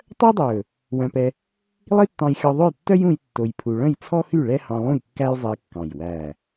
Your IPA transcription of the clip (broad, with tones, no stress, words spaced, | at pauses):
tˤœ˥dˤɵ˨˩ | wœ̃˧pɛ˧ | lˠi˥tːɑ̃˧jxʲɔ˧ðˤø˥˨j tːœ˥jũ˧j tːo˧jpʰu˧ ɭœ̃˥˨jt͡sʰɔ˥xy˥˨ ɭɛ˥hɑ̃˧lˠũ˥˨jkːæ˥j zˤi˧kːɑ̃˨˩j wæ˨˩